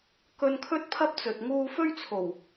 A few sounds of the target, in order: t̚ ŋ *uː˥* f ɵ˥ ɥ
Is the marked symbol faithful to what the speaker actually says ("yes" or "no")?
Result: no